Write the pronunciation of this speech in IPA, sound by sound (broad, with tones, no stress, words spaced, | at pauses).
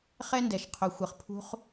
χɛ˦ndɛ˩ʃ qʰo˨xʷɘ˨χpʰṳ˦χ